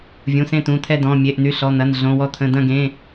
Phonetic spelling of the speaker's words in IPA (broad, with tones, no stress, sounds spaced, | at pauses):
vʲ ũ˩˧˩ s ẽ˦˨ t̪ ũ˩˧˩ t̪ʰ ɛ˦˨ d ɔ̃˩˧˩ mʲ e˩˧˩ ʔ n̪ y˩˧˩ ɬ ɔ˩˧˩ n̪ ɐ˩˧˩ n ɮ õ˩˧˩ w ɔ˦˨ t̪ʰ ə̃˩˧˩ d ɐ̃˦˨ ɡ ẽ˩˧˩